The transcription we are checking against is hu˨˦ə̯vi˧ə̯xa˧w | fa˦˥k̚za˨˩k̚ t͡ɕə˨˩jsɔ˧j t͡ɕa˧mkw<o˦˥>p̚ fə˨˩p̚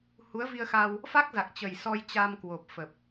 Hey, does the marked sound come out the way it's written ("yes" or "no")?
no